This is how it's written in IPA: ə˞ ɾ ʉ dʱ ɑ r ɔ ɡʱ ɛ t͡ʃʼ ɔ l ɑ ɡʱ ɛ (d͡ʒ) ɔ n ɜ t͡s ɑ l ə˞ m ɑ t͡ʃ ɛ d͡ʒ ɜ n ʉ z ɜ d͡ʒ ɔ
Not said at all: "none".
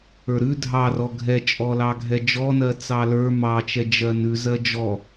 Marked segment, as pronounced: d͡ʒ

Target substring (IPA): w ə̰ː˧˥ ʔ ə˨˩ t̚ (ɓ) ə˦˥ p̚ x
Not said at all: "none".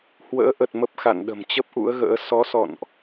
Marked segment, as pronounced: m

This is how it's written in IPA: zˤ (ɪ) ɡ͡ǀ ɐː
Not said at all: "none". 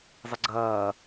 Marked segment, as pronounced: ɪ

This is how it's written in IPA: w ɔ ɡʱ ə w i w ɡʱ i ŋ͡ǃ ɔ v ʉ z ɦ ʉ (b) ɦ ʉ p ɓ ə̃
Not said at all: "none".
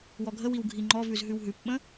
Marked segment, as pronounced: w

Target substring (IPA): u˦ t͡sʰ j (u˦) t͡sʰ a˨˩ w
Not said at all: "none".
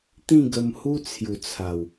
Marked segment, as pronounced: u˨˩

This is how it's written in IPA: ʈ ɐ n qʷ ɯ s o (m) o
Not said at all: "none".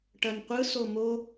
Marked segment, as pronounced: m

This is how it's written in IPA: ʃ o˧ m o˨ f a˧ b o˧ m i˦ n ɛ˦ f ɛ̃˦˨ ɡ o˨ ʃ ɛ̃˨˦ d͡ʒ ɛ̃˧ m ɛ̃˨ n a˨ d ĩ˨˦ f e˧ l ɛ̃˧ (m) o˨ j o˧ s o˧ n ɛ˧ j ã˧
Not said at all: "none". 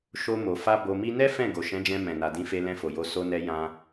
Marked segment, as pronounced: f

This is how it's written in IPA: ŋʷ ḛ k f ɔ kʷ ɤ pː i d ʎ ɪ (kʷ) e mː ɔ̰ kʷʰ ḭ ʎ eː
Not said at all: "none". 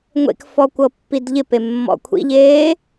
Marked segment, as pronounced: p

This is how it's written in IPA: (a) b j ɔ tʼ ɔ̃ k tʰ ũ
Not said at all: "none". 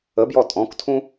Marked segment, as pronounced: ə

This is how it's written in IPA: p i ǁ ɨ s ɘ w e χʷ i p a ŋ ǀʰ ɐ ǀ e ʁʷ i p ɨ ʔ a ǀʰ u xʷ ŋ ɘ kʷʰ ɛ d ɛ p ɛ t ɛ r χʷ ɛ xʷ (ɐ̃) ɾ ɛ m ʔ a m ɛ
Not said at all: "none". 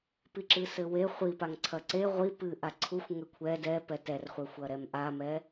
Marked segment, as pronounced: ɐ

